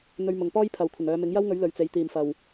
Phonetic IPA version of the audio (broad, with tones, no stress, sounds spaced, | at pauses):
n̪ ɵ˧ ɥ m ʊ˨ ŋ p ɔː˥ j pʰ ɐ˨ w kʷʰ ɪ˨˩ ŋ œː˨˧ m ɪ˨˥ ŋ j ɐ˥ w ŋ ɵ˨˥ ɥ l ɵ˨ ɥ t͡s e˨ j t̪ iː˨˩ m f ɐ˨˩ w